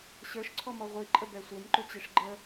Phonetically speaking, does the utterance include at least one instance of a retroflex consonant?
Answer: yes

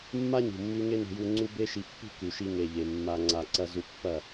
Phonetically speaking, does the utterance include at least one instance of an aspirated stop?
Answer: no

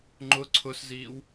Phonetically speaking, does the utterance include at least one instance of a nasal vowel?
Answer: no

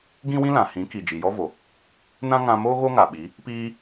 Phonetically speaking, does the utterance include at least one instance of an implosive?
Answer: yes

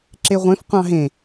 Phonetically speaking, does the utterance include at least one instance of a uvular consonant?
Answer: yes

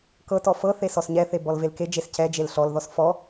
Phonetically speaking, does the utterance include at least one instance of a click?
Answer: no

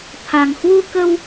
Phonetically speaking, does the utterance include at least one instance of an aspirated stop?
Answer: yes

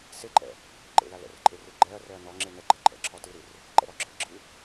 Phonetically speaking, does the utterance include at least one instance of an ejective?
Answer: yes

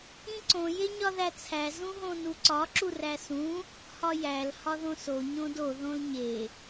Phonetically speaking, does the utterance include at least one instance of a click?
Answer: yes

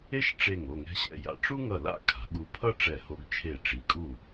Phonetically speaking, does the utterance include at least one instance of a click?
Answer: no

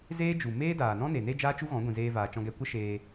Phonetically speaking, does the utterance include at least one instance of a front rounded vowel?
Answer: no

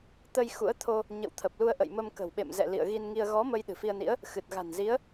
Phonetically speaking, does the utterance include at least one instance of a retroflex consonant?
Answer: no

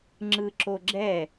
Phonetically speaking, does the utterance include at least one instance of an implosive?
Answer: no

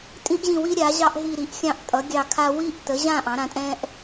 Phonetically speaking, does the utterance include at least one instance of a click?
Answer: no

